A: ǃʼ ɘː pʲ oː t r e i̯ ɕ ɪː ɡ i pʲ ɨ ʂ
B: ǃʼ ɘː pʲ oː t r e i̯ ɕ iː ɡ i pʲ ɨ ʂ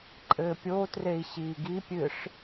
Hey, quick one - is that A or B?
B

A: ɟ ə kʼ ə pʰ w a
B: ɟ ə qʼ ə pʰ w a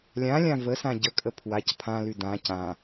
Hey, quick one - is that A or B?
A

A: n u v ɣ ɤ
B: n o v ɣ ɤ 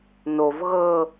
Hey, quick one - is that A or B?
B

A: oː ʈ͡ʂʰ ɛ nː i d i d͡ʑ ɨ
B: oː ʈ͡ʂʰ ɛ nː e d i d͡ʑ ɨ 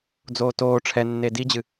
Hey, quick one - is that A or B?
B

